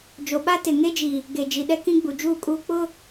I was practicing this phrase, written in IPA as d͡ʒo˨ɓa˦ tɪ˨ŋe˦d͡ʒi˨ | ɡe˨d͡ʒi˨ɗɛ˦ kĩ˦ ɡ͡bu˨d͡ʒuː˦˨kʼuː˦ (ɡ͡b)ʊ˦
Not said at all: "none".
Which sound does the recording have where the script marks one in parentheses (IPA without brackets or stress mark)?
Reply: k͡p